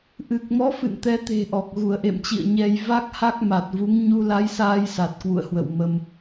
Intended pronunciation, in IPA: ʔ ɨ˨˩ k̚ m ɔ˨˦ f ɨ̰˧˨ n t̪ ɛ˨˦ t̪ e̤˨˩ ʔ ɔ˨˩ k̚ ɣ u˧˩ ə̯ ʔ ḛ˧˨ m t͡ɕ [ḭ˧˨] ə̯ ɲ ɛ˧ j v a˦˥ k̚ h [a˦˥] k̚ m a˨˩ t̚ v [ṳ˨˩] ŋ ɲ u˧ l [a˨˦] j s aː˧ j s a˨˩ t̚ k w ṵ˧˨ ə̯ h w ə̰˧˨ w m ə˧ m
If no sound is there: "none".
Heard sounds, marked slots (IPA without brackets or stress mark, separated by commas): ḭ˧˨, a˦˥, u˨˦, a˨˦